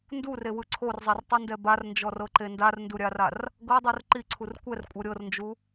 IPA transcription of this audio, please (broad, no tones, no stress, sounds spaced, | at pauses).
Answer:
n d u r e w ɯ ǀʰ o r zˤ ɛ r tˤ i n d ɛ b a r n d͡ʒ ɔ r ɤ ǃ e n d a r n d u ɾʲ a r a r | ɡ ɤ dˤ u r ǃ i ǀʰ u r kʷ ɛ r kʷʼ ɤ ɾʲ ɤ r n d͡ʒ u